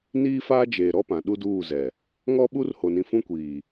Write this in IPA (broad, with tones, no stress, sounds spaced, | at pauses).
n iː˦ f aː˦ d͡ʒ eː˨ ɾ ɔ˦ p ã˨ ɗ u˦ d uː˦˨ z ɛ˨ | ŋ ɔ˦ ɓ u˦ r h o˨ n ĩ˨ f ũ˦ kʷ iː˨